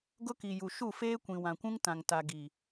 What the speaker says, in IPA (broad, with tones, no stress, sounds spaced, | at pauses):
ɡ ʊ˦ k i˨ j u˨ ʃ u˦˨ f eː˦ kʷ ĩ˨ w ã˨ kʷ ũ˦ ŋ t ã˨ ŋ t a˨ ɡ i˨